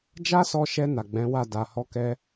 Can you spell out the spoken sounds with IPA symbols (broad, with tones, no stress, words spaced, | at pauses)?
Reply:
d͡ʒa˦sɔ˧ʃɛ˧ na˨ɡ͡bɛ̃˨˦ wa˦˨ da˨hɔ˧kɛ˧